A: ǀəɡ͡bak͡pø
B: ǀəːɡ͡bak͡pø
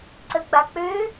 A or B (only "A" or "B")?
A